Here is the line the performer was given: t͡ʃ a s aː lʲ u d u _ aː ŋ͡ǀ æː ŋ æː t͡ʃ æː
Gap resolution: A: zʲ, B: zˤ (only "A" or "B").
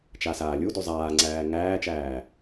B